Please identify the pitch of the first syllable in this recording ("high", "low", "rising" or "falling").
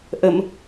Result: low